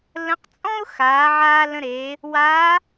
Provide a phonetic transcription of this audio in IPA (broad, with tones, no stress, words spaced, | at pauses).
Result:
lə̃˧˥q t͡sʼɔ̃˥ʊ̯ xaː˩˧ʕaː˧ lə̃˧ɾe˩˧ | waː˧˥